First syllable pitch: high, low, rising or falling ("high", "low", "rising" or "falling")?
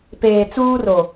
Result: low